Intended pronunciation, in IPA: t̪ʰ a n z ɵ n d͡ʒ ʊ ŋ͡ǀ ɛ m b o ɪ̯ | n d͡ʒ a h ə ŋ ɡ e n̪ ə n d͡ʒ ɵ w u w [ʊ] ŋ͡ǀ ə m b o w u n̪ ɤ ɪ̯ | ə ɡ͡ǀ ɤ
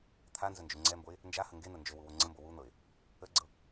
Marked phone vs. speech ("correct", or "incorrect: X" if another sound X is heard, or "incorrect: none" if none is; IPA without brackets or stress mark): correct